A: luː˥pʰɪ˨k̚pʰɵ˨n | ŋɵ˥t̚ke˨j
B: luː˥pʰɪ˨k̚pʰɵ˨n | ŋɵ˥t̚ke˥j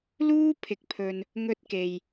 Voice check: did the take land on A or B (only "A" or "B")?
A